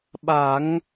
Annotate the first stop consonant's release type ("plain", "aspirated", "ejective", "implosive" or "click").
implosive